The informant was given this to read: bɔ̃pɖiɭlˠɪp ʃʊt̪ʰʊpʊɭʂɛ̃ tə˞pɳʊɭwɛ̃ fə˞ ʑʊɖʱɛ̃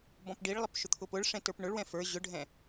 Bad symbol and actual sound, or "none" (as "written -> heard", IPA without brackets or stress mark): none